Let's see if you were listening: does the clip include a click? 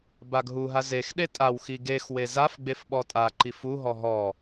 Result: yes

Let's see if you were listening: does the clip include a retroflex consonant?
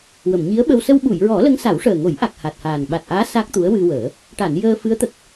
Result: yes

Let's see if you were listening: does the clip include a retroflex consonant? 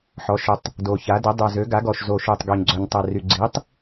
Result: no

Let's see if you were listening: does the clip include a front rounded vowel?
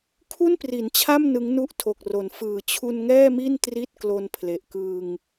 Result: no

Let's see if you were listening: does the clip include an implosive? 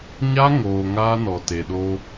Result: yes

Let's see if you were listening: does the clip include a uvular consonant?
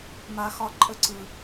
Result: no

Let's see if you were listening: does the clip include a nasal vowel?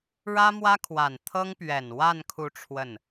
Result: no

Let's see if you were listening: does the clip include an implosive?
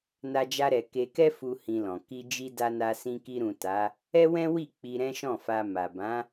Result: no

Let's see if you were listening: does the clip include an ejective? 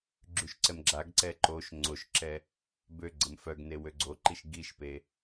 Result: no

